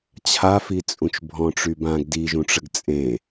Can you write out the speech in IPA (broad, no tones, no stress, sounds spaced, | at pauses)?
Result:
t͡ɕʰ a f i t͡sʼ ũ t͡ʃ bʱ ɔ̃ ʈ͡ʂ y b ã ɡ d i ʒ ũ ʈ͡ʂ ə ɡ t͡sʼ ẽ